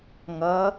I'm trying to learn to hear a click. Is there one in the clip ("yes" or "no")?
no